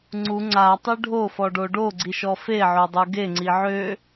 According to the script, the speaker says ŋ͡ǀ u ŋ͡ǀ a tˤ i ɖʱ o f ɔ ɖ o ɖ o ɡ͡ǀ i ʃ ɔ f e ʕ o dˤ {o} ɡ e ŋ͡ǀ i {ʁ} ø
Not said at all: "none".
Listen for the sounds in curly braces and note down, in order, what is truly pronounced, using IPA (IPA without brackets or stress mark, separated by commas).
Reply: u, ʕ